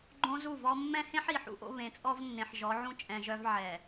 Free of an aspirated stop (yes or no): yes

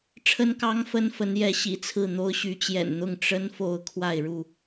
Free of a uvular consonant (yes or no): yes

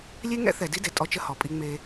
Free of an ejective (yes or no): no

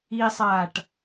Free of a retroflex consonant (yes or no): no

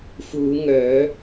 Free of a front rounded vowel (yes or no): no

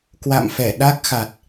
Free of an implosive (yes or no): no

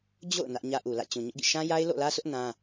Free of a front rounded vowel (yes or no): yes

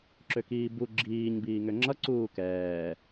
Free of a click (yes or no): no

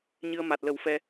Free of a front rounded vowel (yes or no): yes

